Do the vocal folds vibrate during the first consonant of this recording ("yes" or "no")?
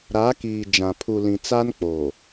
yes